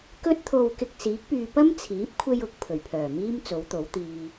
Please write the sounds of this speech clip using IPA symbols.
k ɵ˧ t̚ t̪ʰ o˨ w k ɪ˨ k̚ s iː˨˥ k̚ p yː˧ p ɐ˥ m t͡sʰ iː˨˥ p̚ kʷʰ e˧ j ʊ˨ k̚ pʰ ɵ˨˩ ɥ pʰ œː˨˩ m iː˥ m t͡s o˨˥ w t̪ o˨˥ w t̪ iː˧

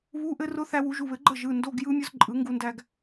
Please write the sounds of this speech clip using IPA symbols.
β u˧˥˧ ʔ ɘ˦˥ r ʊ˦˥ θ æ˧ w u˨˩˦ ʒ u˩˧˩ β ɘ˨˩˦ ɡ͡ǃ ə˥˩ ʒ ɯ˩˧˩ n d o˧˥˧ ɡ j ɯ˦˥ mʲ ʊ˦˥ z ǃʼ ɯ˨˩˦ ŋ ɡ u˧ n d æ˧ ɡ

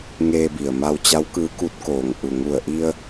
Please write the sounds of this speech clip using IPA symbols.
ŋ eː˧ b i˩ ə̯ m a˧ w t͡ɕ a˧˥ w k ɯː˧˥ k u˧˥ t̚ k oː˩ ŋ ʔ u˩ ŋ u˧˩ ə̯ ʔ i˧ ə̯

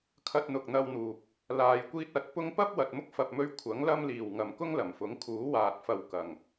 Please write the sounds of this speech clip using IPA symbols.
kʰ ɐ˧ t̚ n̪ ʊ˨ k̚ n̪ ɐ˧ w n̪ uː˨ p̚ | l aː˨ j kʷ iː˧ t̚ ɐ˨˥ t̚ p ʊ˧ ŋ p ɐ˥ p̚ w ɐ˨ t̚ m ʊ˥ k̚ f ɐ˨ p̚ m ɵ˧ ɥ kʷʰ ɐ˨˥ ŋ l ɐ˧ m l iː˨˩ w ŋ ɐ˨ m k ʊ˥ ŋ l ɐ˨˩ m f ʊ˨˥ ŋ kʰ uː˨˥ w aː˨ t̚ f ɐ˨ w k ɐ˨˩ ŋ

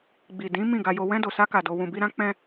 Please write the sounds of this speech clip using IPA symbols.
ɡ͡b i˨ d ĩ˨˦ m ĩ˦˨ ɡ a˧ j o˧ w ɛ̃˧ d o˨ s a˧ k a˨ d o˧ w ũ˧ b i˦ ɾ ã˦ k͡p ɛ̃˧

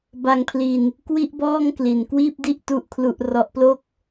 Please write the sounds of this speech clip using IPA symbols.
b a˧ ŋ pʰ l i˧ n | k w i˥˩ ʔ b ɔː˥˩ ŋ k l i˨˩ n k w iː˥˩ p̚ d i˥˩ ʔ t u˥˩ ʔ kʰ l u˥˩ ʔ r ɔ˦˥ ʔ p l o˥˩ k̚

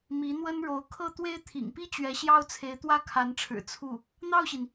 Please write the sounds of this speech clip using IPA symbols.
m i˧˥ n̪ w ə˥ n ɻ o˧˥ ʊ̯ kʰ ɤ˥˩ t̪ w e˥ ɪ̯ t̪ʰ ḭ˨˩ ŋ p i˥ t͡ɕ ɥ ɛ˧˥ ɕ j ɑ˥ ʊ̯ t͡sʰ e˧˥ ɪ̯ t̪ w ä˥ kʰ a˧˥ n ʈ͡ʂʰ ɻ̩˨˩ t͡sʰ u˥˩ | n̪ ɑ˥˩ ʊ̯ ɕ i˩ n

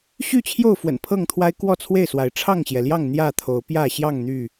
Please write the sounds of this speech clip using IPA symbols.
ɕ y˥˨ t͡ɕʰ j o˥˨ ʊ̯ f w ə̰˨˩ n pʰ ɤ˥˨ ŋ t̪ʰ w a˦ ɪ̯ k w ɔ˥˨ t͡sʰ w e˥˨ ɪ̯ s w a˨˦ ɪ̯ ʈ͡ʂʰ ɑ˥˨ ŋ ɕ j ɛ˩ l j ɑ˥˨ ŋ n̪ j ä˥˨ t̪ʰ o˨˦ ʊ̯ p j ä˥˨ ɕ j ɑ˥˨ ŋ n̪ y˥˨

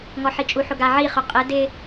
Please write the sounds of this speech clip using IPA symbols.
ŋ ɔ ħ i t͡ʃʼ u ħ ʊ ɡ a ʕ i χ ʊ qʼ ɪ d ɪ

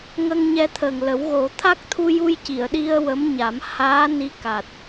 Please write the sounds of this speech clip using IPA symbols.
ŋ ə˧ ŋ ɲ ɛ˧ t̪ʰ ə˨˩ ŋ l ə˨˩˦ w ɣ o˨˩˦ t̪ʰ a˦˥ k̚ t̪ʰ u˧ j u˧ j c i˨˩˨ ə̯ ɗ i˧ ə̯ w ə˧˥ m ɲ a˨˩˦ m h aː˧˥ n i˧˥ k a˨˩ t̚

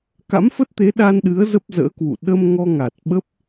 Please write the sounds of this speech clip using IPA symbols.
k a̰˧˥ m f ə˦˥ t̚ t̪ e˨˦ ɗ a˧ n ɗ ɨ˨˦ ə̯ z ə˦˥ p̚ z ə̰ː˧˥ k w ṵ˧˨ ɗ ə˧ m ŋ ɔ˧ ŋ a˨˩ t̚ ɓ ə˦˥ p̚

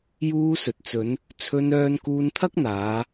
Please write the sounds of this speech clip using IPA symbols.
j uː˧ s ɵ˨ t̚ t͡s ɵ˨˧ n | t͡sʰ ɵ˧ n œː˧ n k uː˧ n t̪ʰ ɐ˥ k̚ n̪ aː˨˧

